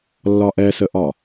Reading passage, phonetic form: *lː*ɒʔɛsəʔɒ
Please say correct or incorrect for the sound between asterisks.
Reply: correct